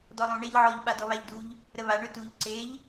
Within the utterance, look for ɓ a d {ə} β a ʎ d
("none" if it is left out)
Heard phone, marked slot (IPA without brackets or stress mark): ɔ